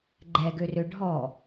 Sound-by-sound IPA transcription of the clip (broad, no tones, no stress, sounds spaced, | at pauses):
ɡ͡ǃ ɛ ɡ ø r ø ɖʱ ɔ